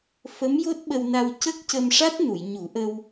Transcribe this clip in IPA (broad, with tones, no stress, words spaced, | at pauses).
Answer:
fə˧˥mjo˦˥t̚ɓə˧wna˧w cə˦˥k̚cə˧mʂa˦˥t̚nu˨˩˨j ɲu˨˩˦ʔə˧w